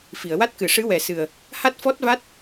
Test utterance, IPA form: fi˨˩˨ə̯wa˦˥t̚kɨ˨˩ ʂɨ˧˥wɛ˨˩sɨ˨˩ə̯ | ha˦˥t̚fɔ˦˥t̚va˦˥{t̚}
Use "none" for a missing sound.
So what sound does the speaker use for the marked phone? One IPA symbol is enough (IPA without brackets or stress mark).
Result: t̚